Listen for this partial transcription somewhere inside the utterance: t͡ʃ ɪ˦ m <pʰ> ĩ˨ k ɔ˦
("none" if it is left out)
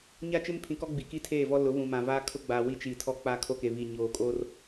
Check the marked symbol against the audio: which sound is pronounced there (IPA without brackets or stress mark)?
pʰ